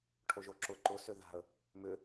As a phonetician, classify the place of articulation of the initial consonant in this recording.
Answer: retroflex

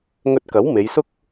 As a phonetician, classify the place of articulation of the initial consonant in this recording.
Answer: velar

